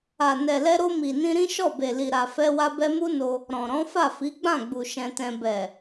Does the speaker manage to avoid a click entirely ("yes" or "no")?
yes